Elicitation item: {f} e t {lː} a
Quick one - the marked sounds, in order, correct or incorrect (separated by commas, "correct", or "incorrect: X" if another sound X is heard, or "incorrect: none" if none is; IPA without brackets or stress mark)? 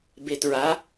incorrect: b, incorrect: ɹ